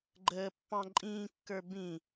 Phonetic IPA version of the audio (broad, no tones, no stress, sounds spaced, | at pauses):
ɡ͡ǃ əː pː ɑ̃ ǃʼ ĩː kː ə˞ b ĩ